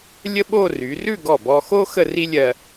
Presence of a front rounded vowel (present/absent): present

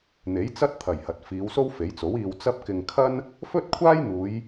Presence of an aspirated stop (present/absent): present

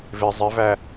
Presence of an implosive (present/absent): absent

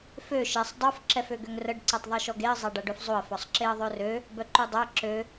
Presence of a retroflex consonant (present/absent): present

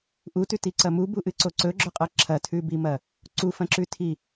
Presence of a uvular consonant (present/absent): present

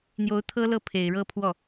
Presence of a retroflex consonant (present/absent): present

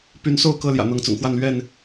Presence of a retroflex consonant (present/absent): absent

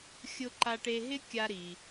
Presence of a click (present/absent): present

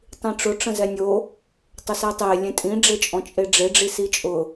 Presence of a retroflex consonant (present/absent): present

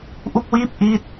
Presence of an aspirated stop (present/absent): absent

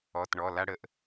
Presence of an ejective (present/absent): absent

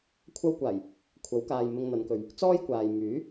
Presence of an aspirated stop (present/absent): present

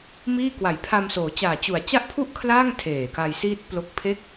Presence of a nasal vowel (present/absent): absent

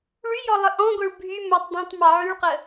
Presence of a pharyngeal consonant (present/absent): present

